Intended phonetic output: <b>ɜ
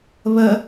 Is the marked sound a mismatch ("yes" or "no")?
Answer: yes